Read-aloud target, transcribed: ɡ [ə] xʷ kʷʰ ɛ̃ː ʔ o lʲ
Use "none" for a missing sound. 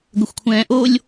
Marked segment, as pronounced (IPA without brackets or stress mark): ə